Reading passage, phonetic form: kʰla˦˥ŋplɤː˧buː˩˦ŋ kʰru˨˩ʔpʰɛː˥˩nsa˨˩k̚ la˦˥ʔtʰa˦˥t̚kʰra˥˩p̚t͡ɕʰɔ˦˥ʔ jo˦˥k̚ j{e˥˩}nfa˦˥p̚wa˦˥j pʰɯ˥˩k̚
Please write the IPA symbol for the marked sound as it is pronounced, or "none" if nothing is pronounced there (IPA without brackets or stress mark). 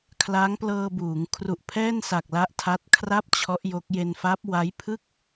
e˧